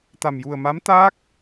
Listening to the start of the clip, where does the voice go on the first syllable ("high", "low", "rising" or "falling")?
low